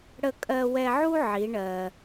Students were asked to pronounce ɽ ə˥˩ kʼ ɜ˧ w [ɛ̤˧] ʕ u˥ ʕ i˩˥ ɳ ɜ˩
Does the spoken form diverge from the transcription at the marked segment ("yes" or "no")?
yes